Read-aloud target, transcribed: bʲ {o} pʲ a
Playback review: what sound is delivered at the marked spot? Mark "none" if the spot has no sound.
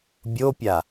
o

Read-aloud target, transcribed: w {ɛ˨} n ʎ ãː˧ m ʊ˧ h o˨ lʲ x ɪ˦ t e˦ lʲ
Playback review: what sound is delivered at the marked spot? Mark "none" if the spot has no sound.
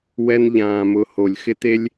ɛ˦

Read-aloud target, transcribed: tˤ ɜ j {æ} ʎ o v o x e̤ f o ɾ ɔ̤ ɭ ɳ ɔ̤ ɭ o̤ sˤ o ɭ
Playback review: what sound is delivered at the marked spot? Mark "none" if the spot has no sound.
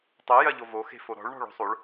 ɜ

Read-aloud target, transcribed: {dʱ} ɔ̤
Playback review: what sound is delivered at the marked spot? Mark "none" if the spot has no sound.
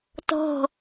t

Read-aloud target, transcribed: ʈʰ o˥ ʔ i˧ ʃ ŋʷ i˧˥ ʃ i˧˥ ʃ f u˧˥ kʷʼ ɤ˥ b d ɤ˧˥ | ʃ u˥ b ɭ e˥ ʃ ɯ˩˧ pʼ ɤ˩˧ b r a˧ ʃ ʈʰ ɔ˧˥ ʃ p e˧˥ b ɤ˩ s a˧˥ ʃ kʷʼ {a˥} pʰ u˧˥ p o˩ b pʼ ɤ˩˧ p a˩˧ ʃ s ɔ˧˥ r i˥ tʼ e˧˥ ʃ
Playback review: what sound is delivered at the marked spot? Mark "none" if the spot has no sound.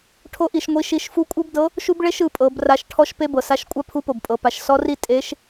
a˥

